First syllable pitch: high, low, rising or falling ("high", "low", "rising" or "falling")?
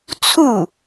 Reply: falling